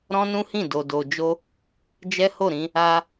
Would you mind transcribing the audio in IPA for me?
ɾɔ̃˦nũ˦hĩ˦˨ do˧do˧d͡ʒo˦ | d͡ʒɛ˦ho˦˨ɾĩ˧ | a˧

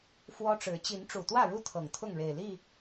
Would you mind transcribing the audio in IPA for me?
fwɔ˦ʈ͡ʂɻ̩˨˦ t͡ɕi˨˦nʈ͡ʂu˨˩t̪wä˥˨ɻu˥˨ t̪ʰɤ˨˩ŋt̪ʰʊ˥˨ŋɻe˨˩ɪ̯li˥˨

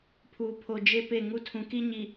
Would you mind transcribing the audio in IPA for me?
pʰuː˨pʰo˨ d͡ʒe˦ pe˦˨ŋu˦ tʰũ˨ki˦ɲi˨

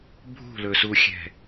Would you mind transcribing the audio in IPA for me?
bʱṳlɵsuxʲɛ̤

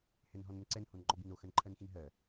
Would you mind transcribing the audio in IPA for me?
hɛnɦɔnənǀɛn honŋ͡ǃɔbino xɜnǃʰɜnxinɦɜ

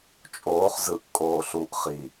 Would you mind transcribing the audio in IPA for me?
t͡ʃʼoːχ zɯʔ kʼoːɬuʔ χi

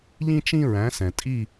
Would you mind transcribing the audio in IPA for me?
ʎĩ˥t͡ʃĩ˥ɹæ̃˨˥sɛ̃˨ tʼi˥˧

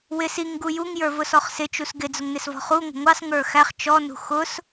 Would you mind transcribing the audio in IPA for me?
wɪs iŋɡu juŋjə˞vʊsɔχ sɪt͡ʃus ɡɪd͡zʊŋnɪsvɔ̤ χuŋʷə̤ ŋʷɑsŋə˞ xæχ t͡ʃɔnṳ xʊs

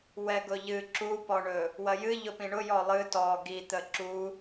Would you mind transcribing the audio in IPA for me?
wɛɡʊʎɨ ǁupɔɳɵ | wɐjɨ ʎʊpĩɳʊ jɔlˠɨ tɔ ɡit̪ə ǁu

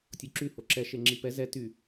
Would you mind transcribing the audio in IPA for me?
tʲoǁy hoǁɛ ʃeŋ͡ǁipɛ zɛ ty

